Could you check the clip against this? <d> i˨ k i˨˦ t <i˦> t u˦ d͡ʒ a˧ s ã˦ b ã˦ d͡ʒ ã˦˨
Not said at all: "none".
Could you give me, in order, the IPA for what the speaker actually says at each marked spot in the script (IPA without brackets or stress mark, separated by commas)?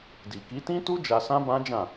d, ĩ˦